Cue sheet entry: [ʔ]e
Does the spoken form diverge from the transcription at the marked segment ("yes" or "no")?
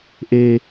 no